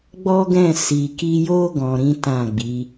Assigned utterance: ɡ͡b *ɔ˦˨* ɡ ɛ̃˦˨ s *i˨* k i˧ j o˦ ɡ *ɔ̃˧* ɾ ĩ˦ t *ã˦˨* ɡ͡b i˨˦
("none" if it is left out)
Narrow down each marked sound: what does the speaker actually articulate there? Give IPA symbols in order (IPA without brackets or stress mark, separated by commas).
ɔ˦, i˨, ɔ̃˧, ã˦˨